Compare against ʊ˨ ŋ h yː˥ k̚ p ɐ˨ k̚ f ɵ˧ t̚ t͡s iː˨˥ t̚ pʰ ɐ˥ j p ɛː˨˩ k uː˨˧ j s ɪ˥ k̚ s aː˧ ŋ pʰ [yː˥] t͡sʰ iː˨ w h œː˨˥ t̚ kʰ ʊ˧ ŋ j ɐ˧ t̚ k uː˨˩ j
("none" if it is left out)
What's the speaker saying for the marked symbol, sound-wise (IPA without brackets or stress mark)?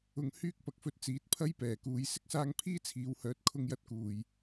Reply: iː˥